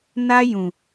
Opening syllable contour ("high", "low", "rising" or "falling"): high